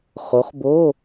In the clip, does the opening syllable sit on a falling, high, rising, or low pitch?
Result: rising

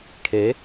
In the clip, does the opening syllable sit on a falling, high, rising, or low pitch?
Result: rising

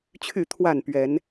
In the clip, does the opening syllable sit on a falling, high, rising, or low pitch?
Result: falling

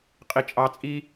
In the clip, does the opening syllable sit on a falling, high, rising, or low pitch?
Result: low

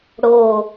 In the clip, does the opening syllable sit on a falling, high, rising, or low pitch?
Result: falling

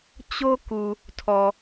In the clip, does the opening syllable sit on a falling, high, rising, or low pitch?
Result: high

